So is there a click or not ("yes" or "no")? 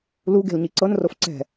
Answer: yes